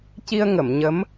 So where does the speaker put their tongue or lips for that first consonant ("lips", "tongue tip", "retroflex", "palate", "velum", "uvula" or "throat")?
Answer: palate